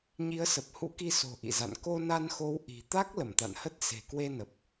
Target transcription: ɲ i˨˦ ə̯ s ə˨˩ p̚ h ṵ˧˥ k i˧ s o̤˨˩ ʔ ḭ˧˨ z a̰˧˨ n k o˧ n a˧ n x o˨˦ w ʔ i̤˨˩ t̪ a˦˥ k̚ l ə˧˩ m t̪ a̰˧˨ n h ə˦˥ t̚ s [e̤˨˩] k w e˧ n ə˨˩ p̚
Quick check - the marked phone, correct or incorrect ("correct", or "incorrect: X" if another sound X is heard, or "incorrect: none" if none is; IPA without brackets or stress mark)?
correct